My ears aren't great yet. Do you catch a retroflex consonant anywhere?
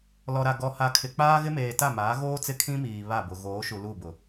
no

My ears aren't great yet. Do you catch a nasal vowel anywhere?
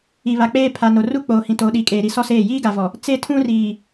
yes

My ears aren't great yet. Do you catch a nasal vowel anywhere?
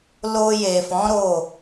yes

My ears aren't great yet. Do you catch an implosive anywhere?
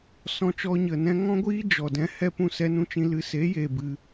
no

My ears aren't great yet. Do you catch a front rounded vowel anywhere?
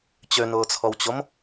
yes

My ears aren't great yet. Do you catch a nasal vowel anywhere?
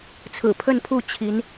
no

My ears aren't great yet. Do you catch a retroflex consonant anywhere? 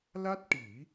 yes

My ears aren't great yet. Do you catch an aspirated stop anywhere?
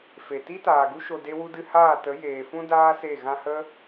no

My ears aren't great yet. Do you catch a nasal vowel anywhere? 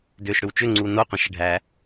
yes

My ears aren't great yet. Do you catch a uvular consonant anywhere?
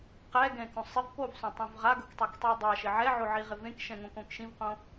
yes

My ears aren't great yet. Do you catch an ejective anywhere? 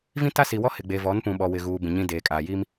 yes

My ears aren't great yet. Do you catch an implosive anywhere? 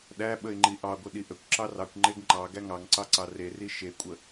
yes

